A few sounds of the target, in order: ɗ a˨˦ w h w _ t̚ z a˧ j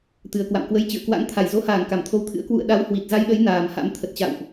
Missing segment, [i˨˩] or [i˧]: i˨˩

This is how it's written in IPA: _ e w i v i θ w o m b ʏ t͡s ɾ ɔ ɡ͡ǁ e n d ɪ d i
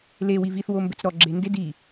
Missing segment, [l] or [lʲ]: l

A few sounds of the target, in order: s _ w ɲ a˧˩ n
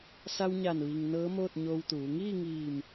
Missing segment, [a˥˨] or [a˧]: a˧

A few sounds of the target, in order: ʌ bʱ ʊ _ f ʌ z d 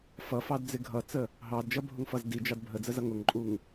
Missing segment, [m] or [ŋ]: ŋ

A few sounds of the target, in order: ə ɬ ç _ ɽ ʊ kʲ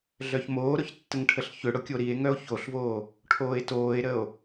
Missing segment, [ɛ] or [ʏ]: ʏ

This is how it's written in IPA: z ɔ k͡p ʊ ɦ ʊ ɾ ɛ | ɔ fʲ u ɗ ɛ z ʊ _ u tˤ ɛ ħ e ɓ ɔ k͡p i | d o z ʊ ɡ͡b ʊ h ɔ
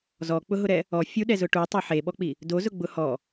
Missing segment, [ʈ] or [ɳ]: ʈ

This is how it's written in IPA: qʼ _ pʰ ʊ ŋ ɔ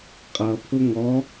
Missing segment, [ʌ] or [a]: ʌ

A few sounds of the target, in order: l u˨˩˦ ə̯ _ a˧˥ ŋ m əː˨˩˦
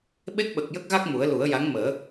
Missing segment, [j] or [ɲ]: j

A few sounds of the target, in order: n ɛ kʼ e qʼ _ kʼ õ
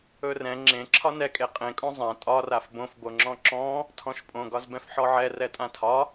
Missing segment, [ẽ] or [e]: ẽ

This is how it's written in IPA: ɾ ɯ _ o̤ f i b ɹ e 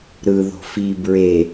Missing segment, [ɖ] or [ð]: ð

